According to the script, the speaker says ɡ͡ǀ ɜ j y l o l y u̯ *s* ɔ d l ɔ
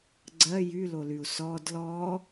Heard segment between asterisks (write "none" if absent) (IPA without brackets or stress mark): s